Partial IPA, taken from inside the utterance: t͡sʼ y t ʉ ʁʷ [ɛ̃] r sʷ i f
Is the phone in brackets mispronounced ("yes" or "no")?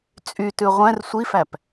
no